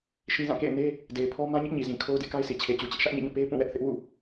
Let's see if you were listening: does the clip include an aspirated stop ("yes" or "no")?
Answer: yes